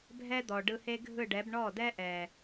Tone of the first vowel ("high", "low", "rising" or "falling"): high